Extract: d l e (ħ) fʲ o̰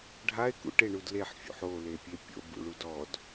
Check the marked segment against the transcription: correct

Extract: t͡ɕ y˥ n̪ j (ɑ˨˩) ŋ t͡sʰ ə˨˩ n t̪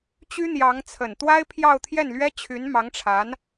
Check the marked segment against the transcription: incorrect: ɑ˧˥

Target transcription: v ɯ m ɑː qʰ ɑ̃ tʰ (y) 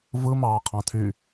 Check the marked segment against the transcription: correct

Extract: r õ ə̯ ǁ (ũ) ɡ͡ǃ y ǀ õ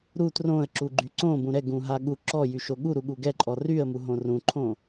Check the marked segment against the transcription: incorrect: u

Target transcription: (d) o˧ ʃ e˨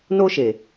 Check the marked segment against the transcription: incorrect: n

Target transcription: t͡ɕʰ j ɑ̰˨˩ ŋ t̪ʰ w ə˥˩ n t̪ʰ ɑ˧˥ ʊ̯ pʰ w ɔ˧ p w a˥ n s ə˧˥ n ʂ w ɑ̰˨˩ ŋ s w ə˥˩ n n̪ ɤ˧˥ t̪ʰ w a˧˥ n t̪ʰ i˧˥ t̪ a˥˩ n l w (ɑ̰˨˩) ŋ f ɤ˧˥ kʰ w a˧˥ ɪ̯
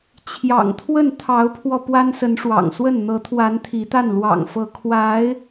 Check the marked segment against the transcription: correct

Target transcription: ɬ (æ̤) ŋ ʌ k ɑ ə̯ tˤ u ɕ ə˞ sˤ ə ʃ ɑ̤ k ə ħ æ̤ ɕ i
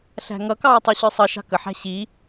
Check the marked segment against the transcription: correct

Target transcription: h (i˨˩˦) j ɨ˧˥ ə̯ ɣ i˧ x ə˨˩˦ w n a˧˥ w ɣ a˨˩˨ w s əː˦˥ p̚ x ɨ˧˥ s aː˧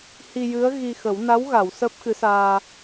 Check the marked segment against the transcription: incorrect: i˧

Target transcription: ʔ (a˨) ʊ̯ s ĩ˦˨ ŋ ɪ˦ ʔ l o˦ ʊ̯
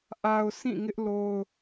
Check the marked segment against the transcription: correct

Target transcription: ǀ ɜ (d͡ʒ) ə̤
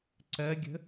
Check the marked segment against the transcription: incorrect: ɡʲ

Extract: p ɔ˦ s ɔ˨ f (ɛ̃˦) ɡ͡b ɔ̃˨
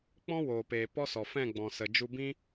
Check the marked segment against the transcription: incorrect: ɛ̃˦˨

